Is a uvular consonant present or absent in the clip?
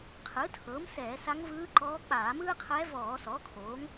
present